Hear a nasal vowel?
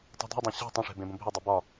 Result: yes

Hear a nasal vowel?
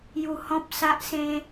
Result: yes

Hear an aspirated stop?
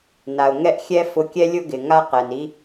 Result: no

